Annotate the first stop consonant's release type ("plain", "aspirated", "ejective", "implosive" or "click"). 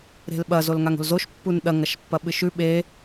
implosive